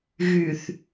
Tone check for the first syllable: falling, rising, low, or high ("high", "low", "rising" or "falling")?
low